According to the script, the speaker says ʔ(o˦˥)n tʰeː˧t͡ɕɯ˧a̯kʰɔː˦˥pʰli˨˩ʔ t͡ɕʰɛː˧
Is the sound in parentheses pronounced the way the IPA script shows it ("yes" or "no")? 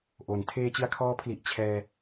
no